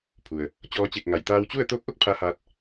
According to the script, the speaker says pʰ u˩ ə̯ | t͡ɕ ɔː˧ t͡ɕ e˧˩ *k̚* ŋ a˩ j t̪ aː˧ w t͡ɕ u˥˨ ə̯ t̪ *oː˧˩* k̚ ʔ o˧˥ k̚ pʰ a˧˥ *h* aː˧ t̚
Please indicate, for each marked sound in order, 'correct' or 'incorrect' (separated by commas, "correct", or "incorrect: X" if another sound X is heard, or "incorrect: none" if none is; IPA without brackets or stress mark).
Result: correct, incorrect: oː˧˥, correct